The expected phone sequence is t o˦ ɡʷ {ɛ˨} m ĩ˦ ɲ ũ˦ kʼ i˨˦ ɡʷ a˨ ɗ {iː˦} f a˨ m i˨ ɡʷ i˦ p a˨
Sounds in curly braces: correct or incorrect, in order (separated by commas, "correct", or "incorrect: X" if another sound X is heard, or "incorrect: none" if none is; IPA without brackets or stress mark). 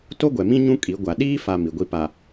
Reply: correct, correct